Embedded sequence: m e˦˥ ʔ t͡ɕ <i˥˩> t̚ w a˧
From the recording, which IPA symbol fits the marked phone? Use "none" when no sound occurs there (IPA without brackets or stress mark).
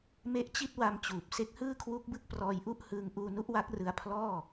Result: i˥˩